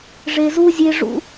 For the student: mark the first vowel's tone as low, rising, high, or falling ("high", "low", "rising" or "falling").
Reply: low